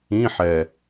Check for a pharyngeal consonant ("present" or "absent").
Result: present